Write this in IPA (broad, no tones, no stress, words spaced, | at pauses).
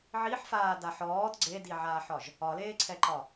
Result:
ʕiħfaːdaħ ɔːd ɡ͡ǀediʕaːħɒʒ | ɒleːǀʰɛǃɒ